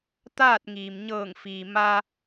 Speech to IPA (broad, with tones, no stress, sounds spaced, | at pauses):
t̪ aː˥˨ t̚ ŋ iː˩ m ɲ ɤː˧˩ ŋ f iː˩ m a˧